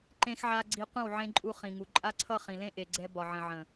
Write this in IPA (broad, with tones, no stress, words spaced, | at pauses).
ǃẽ˦xʕa˦ ɡ͡ǀi˧qʷə̃˦˨w ʕẽ˧ǃʼu˧ χĩ˨ŋu˨ǃʼa˦ ǀʰʌ˦˨χĩ˨lẽ˦ ʔe˨ɡ͡ǀɛ˧ bɒ˨ʕə̃˨ʕə̃˨